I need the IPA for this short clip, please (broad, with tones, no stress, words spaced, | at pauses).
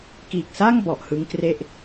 kiː˨˩k̚sa˥˩ŋ bɔ˨˩ʔhɯ˦˥ŋkre˥˩ʔ